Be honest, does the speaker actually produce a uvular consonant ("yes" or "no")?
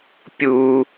no